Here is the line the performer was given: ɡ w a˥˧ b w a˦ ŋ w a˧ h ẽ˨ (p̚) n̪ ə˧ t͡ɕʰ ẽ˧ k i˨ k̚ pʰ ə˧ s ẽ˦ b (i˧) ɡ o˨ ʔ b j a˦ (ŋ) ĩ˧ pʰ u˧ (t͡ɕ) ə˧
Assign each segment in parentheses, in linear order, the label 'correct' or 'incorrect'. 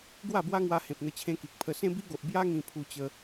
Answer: correct, incorrect, correct, correct

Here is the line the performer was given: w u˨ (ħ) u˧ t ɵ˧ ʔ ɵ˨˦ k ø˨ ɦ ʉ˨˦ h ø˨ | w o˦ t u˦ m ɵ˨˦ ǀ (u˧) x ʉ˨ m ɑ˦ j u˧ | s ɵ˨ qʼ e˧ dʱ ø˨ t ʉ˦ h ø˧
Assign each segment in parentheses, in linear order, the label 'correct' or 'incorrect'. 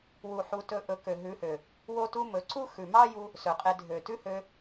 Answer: correct, incorrect

